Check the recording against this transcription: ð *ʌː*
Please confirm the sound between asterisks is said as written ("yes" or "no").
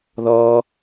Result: yes